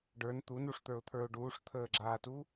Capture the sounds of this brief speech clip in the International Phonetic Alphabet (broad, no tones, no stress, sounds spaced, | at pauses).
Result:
ɖ ə˞ n t̪ u n u ʂ t̪ ə˞ ʊ̯ t̪ʰ ə˞ ʊ̯ ɖ uː ʂ t̪ʰ əː ɡ͡ǁ aː t u